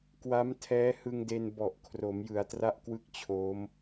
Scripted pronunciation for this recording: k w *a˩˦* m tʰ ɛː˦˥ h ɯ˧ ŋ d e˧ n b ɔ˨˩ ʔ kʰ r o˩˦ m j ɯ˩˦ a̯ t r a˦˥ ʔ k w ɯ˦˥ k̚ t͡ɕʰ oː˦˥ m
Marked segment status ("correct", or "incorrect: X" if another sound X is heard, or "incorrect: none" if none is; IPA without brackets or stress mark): incorrect: a˦˥